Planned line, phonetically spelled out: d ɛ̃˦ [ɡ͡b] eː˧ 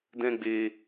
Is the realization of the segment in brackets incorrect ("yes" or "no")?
no